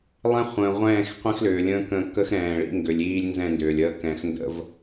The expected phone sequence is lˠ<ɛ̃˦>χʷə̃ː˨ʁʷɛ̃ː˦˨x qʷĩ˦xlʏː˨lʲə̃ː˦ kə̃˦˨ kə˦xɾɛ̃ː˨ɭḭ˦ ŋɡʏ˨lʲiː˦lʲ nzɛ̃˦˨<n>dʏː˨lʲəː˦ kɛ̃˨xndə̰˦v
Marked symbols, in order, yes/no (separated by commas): yes, yes